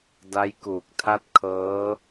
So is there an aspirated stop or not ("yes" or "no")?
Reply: yes